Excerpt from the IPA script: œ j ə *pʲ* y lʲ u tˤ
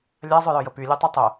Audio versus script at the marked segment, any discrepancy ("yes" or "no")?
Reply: yes